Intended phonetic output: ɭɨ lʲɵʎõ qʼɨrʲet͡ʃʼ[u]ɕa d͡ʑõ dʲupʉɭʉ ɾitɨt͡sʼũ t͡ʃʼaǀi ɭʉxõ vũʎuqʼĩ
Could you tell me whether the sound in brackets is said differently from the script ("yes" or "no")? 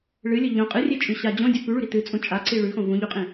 yes